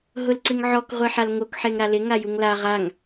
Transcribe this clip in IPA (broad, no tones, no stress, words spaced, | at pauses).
ɦʊlǀɪŋʕɔk ʁʷeħalŋok ħeŋɾalɪ ŋajuŋla ʁaŋ